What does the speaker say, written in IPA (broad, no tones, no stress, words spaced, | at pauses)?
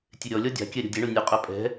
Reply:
tʲeɾʲɔlʲɔ dʲa̤kʲɛ ɾʲɔ̤dʲeɳo nʲœqʼœ pʼɛ̤